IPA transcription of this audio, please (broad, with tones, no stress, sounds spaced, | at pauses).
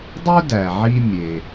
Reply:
dˤ u˥ d æ˩ ʕ i˥ mʲ e˩